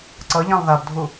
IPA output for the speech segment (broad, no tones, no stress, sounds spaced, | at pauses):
ǀ ʌ ʎ ã lˠ ð a b dʱ u